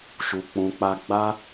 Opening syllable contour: low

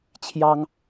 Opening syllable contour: high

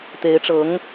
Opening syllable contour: rising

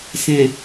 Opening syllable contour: low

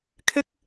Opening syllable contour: high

